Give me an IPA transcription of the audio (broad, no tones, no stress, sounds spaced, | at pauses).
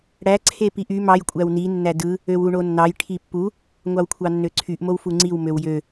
ɽ æ ǀʰ e p i ʔ y m ɑ j kʷʼ æ w n i nː æ d ɯ | ø w u ɳ o nː ɑ j ʈʰ i pː u | ŋʷ ɑ w kʷʰ ɑ nː ø ǀʰ y ʔ m o w f u ŋ͡ǀ i w m ø w j ø